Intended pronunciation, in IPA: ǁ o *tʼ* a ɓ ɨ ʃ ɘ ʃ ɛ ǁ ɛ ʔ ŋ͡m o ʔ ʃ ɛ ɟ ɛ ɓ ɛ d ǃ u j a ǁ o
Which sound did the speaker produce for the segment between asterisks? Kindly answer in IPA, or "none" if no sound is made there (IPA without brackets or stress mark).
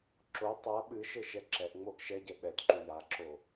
tˤ